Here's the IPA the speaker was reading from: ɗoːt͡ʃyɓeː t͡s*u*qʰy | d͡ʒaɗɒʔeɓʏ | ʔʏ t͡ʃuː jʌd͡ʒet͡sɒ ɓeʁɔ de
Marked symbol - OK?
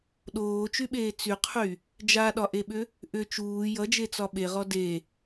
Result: no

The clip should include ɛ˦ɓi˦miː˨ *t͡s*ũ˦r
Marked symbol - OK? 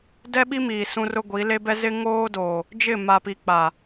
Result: no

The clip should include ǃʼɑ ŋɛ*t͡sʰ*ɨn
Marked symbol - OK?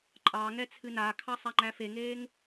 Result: yes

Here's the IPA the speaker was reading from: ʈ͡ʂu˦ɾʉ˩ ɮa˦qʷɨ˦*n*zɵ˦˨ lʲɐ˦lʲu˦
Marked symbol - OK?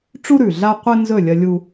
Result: yes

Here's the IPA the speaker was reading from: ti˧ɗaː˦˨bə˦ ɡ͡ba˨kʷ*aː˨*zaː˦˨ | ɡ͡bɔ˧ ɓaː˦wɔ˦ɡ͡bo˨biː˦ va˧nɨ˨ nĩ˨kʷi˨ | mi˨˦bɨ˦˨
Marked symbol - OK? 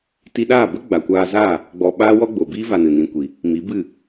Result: no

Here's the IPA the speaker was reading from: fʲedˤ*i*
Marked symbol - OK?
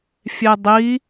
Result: yes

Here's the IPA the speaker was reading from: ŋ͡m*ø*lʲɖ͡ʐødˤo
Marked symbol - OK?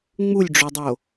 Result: no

